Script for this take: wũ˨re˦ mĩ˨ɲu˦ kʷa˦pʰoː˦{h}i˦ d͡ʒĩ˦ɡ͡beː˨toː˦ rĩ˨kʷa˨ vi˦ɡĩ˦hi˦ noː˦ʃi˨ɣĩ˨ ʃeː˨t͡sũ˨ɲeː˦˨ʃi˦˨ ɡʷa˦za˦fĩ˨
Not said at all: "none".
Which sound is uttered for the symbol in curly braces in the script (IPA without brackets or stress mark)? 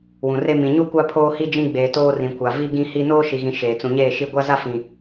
h